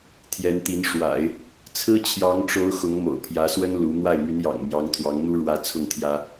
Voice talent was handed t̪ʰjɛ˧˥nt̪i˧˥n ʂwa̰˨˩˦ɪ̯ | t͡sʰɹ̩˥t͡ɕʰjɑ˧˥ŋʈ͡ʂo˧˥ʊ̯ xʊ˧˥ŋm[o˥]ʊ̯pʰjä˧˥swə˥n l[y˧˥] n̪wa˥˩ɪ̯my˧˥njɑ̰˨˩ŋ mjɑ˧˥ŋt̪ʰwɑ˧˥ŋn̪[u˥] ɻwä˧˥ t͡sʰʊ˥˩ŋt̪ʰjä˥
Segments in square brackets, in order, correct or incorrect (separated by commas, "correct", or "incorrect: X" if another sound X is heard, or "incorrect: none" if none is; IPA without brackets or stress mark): incorrect: o̰˨˩, incorrect: u˧˥, correct